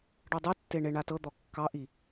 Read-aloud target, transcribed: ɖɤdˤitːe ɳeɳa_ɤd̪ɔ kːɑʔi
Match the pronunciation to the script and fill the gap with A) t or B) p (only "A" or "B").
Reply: A